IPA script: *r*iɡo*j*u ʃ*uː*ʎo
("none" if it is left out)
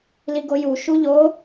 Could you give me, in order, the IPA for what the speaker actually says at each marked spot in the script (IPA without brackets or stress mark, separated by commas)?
l, j, u